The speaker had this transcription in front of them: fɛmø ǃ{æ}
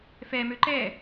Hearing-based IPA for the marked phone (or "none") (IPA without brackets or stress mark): ɛ